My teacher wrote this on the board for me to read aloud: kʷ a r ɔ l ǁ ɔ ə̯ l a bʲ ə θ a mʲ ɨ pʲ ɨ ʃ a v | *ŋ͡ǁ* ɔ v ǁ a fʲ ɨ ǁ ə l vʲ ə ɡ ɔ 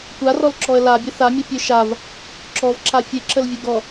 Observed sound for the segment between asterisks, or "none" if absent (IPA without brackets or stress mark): ǁ